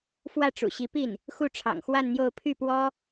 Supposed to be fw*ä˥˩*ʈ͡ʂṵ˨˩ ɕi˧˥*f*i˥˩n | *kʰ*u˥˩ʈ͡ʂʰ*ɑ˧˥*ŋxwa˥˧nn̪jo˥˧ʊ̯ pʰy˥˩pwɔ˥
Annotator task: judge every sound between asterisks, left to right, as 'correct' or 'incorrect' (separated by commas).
correct, incorrect, incorrect, incorrect